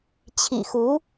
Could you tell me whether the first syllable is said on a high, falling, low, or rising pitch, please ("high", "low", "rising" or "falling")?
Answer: low